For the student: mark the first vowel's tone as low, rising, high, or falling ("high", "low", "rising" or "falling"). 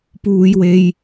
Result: high